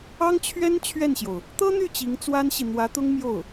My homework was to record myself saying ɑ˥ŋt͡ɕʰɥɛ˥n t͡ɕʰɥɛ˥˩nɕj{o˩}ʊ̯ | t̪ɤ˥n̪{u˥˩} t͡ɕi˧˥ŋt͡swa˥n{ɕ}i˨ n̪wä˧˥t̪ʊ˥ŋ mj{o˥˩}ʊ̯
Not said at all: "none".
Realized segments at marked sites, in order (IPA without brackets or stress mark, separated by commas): o˩, y˥˩, ɕ, o˥˩